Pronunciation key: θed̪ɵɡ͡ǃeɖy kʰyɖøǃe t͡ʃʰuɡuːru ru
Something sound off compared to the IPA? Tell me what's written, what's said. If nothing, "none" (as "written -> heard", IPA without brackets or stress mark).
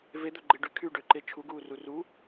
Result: θ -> v